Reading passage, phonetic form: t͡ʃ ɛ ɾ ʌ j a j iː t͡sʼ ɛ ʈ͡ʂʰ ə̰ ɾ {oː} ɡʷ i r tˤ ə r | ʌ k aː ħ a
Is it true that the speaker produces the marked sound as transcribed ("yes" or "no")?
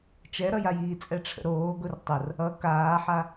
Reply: yes